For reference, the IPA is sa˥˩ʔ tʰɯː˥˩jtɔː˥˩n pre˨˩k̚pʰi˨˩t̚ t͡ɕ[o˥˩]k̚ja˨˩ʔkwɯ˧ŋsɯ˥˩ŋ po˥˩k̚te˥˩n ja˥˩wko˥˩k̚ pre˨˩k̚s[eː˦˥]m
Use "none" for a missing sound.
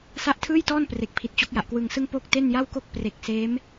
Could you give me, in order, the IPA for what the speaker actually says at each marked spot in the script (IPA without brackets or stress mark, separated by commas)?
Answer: o˦˥, eː˦˥